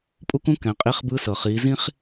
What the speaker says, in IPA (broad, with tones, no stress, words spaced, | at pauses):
pʼu˥kũ˥ kɛ̃˩˧ qʼi˧˥χbɯ˧˥sɤ˩ χiː˩˧zĩ˥χ